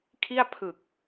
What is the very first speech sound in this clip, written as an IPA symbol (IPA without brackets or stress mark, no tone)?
kʰ